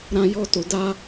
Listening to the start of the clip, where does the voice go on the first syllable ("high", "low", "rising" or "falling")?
high